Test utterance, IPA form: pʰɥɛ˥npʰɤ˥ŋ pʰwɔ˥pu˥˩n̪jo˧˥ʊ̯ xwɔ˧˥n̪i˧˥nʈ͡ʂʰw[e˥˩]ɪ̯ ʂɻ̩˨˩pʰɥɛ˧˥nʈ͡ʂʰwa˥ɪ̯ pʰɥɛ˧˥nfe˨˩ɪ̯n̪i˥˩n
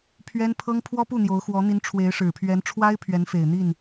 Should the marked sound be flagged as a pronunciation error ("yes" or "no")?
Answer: yes